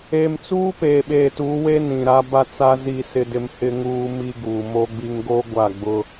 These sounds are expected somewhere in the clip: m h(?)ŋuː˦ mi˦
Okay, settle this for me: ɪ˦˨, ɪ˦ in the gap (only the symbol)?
ɪ˦